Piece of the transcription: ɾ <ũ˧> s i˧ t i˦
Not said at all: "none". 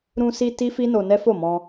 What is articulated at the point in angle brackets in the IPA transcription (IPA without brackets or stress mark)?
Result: ũ˧